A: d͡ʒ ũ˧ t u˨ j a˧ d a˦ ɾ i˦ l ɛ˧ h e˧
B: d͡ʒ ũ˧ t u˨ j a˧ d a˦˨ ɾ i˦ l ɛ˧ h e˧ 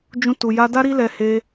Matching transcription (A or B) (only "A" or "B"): A